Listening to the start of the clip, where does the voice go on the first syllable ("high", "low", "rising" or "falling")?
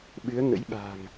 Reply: rising